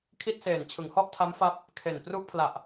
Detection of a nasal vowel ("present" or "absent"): absent